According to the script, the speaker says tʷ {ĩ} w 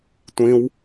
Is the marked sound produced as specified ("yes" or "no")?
yes